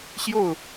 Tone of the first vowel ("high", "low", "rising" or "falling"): falling